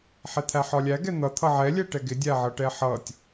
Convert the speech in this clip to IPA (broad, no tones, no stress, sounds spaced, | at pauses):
ħ ɛ t̪ʰ æ ħ ɒ lʲ æ ɡ ɛ n̪ ʌ t̪ʰ ʌ ʕ ɛ lʲ ɛ ʈ ɛ ɡ ɪ dʲ æ ʕ ʌ ʈ ɛ ħ ʌ tʲ